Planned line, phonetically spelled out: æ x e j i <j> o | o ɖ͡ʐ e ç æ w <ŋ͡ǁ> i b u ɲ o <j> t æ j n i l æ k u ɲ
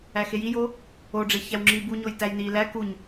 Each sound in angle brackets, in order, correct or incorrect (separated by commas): correct, correct, correct